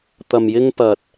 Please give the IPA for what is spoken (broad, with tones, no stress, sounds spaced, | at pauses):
t̪ ɐ˨ m j ɪ˥ ŋ p ɐ˧ t̚